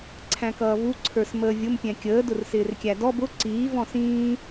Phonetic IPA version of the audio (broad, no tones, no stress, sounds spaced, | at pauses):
ǀʰ æ̃ k ʌː v u ǀʰ ə˞ s m əː vʲ ʊ m pʲ ɛ̃ kʲ əː d ʊ r s ɪː r kʲ æ d ɔ b ʊ ǀ iː v ɔ̃ s ĩː